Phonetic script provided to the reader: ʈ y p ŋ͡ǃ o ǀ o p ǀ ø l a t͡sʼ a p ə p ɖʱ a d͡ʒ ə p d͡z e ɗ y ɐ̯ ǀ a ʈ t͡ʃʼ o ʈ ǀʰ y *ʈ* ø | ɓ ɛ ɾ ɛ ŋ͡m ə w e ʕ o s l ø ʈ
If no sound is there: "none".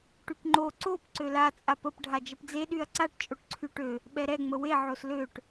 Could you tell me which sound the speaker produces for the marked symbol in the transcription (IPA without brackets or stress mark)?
ʈ